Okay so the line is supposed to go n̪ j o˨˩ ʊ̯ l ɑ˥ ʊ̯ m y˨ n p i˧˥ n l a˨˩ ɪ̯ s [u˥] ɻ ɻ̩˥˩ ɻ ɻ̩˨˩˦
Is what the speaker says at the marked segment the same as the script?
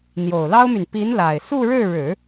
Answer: no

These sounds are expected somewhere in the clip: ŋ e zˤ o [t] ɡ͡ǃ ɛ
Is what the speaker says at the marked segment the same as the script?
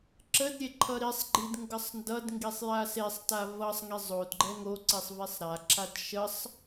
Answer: no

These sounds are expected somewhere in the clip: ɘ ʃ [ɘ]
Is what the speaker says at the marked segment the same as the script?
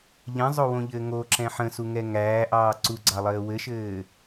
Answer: no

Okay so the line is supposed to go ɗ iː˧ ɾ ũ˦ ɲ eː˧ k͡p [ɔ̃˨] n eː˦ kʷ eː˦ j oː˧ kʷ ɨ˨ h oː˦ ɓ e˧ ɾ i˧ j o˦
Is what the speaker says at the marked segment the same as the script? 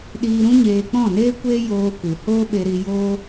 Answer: no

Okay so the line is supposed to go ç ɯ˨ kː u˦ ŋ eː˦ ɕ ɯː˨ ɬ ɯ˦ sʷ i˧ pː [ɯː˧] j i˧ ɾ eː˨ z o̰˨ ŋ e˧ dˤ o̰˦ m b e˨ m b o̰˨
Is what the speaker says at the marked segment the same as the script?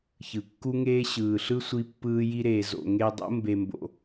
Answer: yes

